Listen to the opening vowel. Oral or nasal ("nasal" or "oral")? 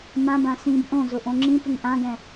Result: nasal